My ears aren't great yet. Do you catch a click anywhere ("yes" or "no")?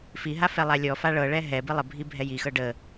no